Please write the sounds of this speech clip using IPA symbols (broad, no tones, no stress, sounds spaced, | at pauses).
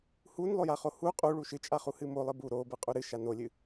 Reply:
h u n lˠ o j a χ o h u qʼ u ɭ u ʃ ɨ t͡ʃʼ a χ u h ɨ m o lˠ ɨ b u ɾ o b ɨ qʼ u ɾ ɨ ʃ a n o lʲ ɨ